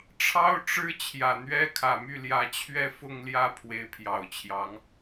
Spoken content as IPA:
ʈ͡ʂʰɑ˥ʊ̯ʈ͡ʂɻ̩˥ t͡ɕʰjä˨˩n̪ɥɛ˥kʰä˨˩ my˥˩ljä˧˥t͡ɕʰɥɛ˥ fʊ˥˧ŋljä˥˩ pʰwe˧˥ɪ̯pʰjɑ˨˩ʊ̯t͡ɕʰjɑ˧˥ŋ

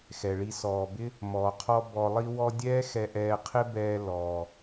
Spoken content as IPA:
xɛ˩ɭi˧ sɔː˩bɪ˥ | mɔː˩qʰɔ˥ bɔ˧lˠi˥wɔ˥ dʲɛː˥xɛ˧ʔɛː˧qʰɪ˥ bɛː˥ lɔː˩

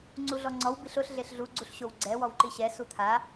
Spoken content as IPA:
ŋ͡ǀuɮɔŋ͡ǀɔw biɬʊɬ ɮeɬɮu ɡ͡ǀuɬɕowɡ͡ǀɛ wɔwǃiɕɛ sut̪ʰa

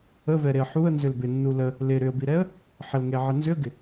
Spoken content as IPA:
əvɛɾeə̯ ħuə̯nzʏl bɪnːu lə | lɪ ɾʏə̯biɾɛə̯ | ħəlŋeʕə nzʏə̯ɡɪ

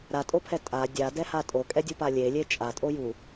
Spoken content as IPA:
ɾatʼopʰɛ tʼa dʲadɛha tʼokʼɛdʲupa lʲelʲe t͡ʃʼatʼoju

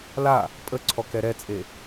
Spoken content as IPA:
la | pʼəǀʰɔ kɛɾɛt͡sʼe

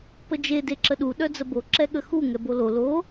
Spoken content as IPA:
pəd͡ʒe deǁəɗu ɗœd͡zəbo ǁɛɠəxu ŋɛbolo lo

